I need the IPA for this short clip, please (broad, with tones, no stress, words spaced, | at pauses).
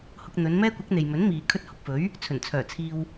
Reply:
hʊ˧k̚n̪ɵ˨˧nmɛː˥kʷɐ˨˥k̚ n̪e˨jmɵ˨˥nmiː˨ kʰɵ˧t̚hʊ˨k̚fɵ˨˥ɥ | t͡sʰɵ˨˩nt͡sʰœː˨˩t͡sʰiː˧w